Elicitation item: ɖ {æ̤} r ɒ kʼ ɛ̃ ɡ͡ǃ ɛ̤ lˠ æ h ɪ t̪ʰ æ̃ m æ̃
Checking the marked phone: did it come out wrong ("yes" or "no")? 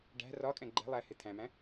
no